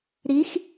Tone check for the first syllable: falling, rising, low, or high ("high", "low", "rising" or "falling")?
rising